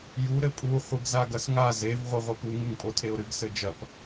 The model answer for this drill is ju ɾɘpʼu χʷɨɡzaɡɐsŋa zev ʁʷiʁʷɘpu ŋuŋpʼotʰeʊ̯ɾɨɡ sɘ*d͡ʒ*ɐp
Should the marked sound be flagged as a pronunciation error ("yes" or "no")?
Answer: no